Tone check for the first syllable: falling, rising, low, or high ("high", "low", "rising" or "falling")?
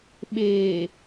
low